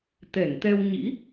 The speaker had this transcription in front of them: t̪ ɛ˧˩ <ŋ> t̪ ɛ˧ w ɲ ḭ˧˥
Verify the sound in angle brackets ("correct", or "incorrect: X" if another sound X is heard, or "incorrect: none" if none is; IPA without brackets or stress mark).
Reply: correct